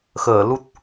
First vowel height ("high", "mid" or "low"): mid